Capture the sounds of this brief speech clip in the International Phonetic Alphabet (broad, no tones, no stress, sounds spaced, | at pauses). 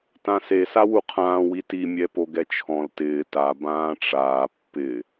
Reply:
t ã s e s a w u qʰ ãː w i t i mʲ ɛ p o ɡ ɛ t͡ʃʰ ɔ̃ l t ɪː t a b ãː ʈ͡ʂ aː pː ɪ